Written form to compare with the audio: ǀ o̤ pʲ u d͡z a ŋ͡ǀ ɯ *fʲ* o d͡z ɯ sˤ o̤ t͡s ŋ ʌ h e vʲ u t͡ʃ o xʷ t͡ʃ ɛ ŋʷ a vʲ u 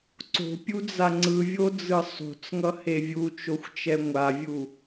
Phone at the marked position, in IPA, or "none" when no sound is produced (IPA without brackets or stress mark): vʲ